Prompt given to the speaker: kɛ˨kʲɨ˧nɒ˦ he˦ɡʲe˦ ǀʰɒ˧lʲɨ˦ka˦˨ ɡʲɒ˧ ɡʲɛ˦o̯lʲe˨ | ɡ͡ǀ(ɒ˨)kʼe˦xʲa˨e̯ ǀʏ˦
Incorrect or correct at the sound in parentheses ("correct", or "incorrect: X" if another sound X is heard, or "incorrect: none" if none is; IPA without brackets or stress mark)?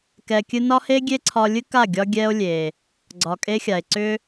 correct